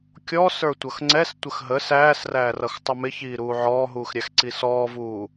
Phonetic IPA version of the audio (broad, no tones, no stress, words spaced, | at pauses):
kʲɔ sə˞tʷʌxŋ͡ǀɛs tʷəxɦə sæːsræːrʌx tˤʌmɪçiːɾuː ʕɔːɦuːxɾʲæx ǀisɔːvuː